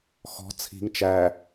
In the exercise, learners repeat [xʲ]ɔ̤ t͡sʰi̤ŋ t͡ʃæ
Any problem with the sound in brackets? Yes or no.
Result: yes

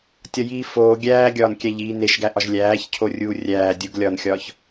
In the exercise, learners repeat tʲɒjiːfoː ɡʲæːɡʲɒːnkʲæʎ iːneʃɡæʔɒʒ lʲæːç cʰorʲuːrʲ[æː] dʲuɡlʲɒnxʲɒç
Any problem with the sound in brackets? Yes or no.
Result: no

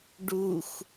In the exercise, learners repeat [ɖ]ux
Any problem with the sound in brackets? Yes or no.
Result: no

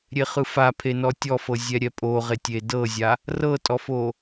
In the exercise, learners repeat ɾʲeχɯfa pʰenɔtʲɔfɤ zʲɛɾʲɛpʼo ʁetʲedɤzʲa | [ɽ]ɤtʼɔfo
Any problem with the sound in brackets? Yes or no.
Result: yes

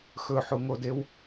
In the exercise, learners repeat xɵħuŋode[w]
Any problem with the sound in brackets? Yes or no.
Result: no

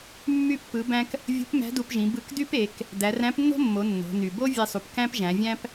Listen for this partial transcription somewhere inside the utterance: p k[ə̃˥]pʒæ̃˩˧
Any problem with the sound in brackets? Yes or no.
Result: yes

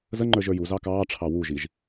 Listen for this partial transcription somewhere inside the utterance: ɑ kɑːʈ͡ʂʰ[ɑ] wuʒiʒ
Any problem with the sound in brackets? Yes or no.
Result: no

